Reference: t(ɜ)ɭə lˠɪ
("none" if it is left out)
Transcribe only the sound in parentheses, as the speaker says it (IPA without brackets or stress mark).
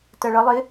ɜ